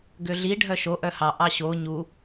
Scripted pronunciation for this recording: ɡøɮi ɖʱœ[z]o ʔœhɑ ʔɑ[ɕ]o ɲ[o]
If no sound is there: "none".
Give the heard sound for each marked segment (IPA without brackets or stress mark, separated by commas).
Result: ʃ, ɕ, u